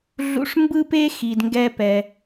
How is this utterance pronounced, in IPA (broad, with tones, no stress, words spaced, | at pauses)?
ɮṵ˧ʂmbɯ˥pe˥ xi˩dŋɡɛ˧pɛ˩